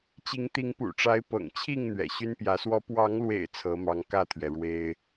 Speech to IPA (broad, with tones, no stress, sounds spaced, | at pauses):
t͡ɕ i˨˦ ŋ t̪ i˨˦ ŋ p ṵ˨˩ ʈ͡ʂ a˨˦ ɪ̯ p ɤ̰˨˩ ŋ t͡ɕʰ i˥˨ ŋ n̪ ɥ ɛ̰˨˩ ɕ y˦ n p j ä˨˦ s w ɔ˦ p w ɑ˨˦ ŋ l w ḛ˨˩ ɪ̯ t͡sʰ ɤ˨˦ m ɑ˨˦ ŋ k ä˥˨ t̪ʰ ɥ ɛ˩ ɻ w e˦ ɪ̯